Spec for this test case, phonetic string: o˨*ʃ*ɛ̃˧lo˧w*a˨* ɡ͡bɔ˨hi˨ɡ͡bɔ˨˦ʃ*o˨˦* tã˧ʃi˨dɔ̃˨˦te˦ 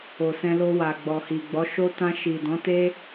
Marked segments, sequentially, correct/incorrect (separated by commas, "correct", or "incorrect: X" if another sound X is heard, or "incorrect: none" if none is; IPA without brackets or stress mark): incorrect: s, correct, incorrect: o˦